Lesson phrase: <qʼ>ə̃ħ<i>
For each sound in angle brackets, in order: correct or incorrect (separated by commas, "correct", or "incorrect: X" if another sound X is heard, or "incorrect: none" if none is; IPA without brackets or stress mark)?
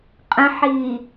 correct, incorrect: iː